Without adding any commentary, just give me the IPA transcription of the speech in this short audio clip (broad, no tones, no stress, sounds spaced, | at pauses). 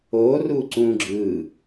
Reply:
o r u ǀ ũ ɡ͡ǁ ɯ